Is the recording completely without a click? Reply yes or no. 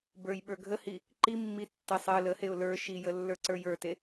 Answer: no